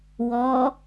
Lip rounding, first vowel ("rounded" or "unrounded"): rounded